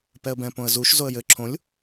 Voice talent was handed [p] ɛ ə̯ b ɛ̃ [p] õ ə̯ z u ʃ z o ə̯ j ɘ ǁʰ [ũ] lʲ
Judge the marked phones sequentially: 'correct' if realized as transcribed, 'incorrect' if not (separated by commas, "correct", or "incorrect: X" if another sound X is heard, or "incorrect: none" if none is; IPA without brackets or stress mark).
correct, correct, incorrect: õ